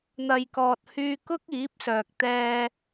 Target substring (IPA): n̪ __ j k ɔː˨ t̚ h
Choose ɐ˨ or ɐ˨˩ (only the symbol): ɐ˨